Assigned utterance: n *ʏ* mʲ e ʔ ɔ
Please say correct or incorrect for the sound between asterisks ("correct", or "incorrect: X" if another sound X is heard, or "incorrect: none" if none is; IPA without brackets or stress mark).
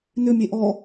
correct